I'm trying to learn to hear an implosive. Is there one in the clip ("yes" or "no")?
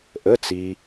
no